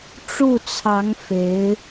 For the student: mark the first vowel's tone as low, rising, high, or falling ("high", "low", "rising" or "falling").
falling